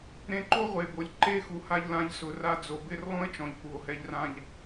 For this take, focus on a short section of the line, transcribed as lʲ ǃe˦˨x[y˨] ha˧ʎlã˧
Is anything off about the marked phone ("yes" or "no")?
yes